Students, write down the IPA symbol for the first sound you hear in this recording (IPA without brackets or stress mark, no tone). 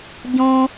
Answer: ɟ